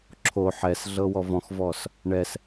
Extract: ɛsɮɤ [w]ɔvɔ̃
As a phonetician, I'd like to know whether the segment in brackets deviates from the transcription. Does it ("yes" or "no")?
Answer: no